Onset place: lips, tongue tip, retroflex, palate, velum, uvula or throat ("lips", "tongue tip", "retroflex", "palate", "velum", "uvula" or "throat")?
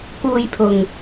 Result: velum